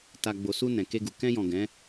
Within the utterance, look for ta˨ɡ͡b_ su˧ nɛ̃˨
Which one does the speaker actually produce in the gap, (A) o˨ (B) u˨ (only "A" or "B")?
A